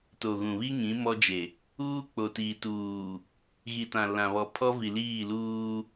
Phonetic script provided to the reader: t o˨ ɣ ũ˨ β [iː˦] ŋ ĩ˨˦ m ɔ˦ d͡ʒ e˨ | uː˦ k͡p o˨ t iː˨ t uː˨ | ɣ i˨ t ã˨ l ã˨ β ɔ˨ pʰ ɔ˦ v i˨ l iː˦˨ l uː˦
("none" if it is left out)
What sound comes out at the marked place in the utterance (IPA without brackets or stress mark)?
i˦